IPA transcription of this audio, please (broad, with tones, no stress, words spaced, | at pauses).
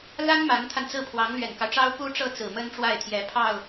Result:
la˥n ma˧˥nt̪ʰa˧nt͡sɹ̩˥˩pʰwɑ˧˥ŋ lɥɛ˨˩nkɑ˦ʊ̯ʈ͡ʂɑ˥ʊ̯ pu˥ʈ͡ʂɤ˥˩ t͡sɹ̩˨˩ mə˥nʈ͡ʂwa˥˩ɪ̯t̪ʰjɛ˧˥ pʰɑ˥˩ʊ̯